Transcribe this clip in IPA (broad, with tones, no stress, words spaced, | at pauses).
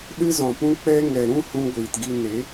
ɗɨ˧zɔ̃˨pũ˧k͡pɛ˧ ŋɛ˨ ɾũ˦˨ hũ˧ɡʷiː˨tɡi˧ ne˨˦